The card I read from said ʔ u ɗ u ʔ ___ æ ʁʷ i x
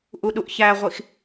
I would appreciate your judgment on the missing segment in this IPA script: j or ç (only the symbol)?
ç